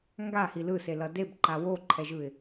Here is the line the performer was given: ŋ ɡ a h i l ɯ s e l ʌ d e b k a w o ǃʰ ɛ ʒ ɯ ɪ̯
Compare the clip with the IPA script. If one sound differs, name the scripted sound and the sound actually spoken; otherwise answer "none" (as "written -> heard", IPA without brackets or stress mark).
k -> ǃ